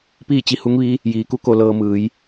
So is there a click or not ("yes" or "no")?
no